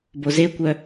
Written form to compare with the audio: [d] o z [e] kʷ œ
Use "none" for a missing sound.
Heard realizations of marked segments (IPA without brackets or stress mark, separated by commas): b, e